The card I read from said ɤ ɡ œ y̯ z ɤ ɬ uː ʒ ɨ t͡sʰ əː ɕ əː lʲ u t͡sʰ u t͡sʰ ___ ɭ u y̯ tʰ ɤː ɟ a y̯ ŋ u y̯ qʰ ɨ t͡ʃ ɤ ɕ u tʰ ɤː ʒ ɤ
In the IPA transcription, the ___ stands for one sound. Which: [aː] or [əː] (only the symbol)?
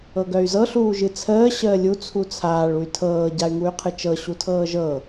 aː